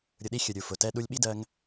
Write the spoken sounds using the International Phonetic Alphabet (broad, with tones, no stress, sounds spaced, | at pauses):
ɾʲ ʊ˧ ɗ i˦ xʲ ʊ˨ ɾʲ u˨ f ʊ˨ t ɛ˦ ɗ u˧ lʲ ɓ i˦ d ɜ˧ ŋ